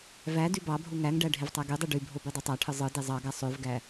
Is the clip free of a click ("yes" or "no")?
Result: yes